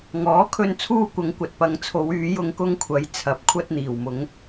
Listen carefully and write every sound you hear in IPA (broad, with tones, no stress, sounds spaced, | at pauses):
ŋ ɔː˨˥ kʰ ɵ˧ n t͡sʰ uː˧ kʷ ɐ˨˧ ŋ kʷ ɐ˨ t̚ p ɐ˨ ŋ t͡sʰ o˨˧ w yː˨˧ j ʊ˧ ŋ k ʊ˧ ŋ kʷʰ ɐ˨˧ j t͡sʰ ɐ˨˥ p̚ kʷʰ ɐ˧ t̚ n̪ iː˨˩ w m ʊ˨˧ ŋ